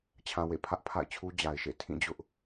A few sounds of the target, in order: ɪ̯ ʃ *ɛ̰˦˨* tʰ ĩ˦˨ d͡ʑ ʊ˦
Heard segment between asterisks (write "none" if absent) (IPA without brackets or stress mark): ḛ˦˨